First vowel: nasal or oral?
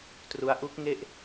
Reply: oral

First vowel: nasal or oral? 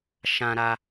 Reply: nasal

